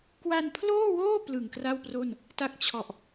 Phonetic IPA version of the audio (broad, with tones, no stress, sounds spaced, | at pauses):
k w a˧ n pʰ l oː˥˩ w oː˥˩ p l ɯ˨˩ ŋ k r a˥˩ w p r o˥˩ n | t a˥˩ k̚ t͡ɕʰ ɔ˨˩ ʔ